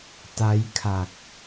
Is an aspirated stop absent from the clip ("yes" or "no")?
no